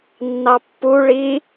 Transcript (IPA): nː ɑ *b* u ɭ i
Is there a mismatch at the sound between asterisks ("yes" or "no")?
yes